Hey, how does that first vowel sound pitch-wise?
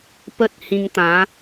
high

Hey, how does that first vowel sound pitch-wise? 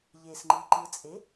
low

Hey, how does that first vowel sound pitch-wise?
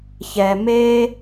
low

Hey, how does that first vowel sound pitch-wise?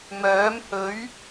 rising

